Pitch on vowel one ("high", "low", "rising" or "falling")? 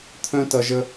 high